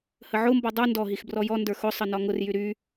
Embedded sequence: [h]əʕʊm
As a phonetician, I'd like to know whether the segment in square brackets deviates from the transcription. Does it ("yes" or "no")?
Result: no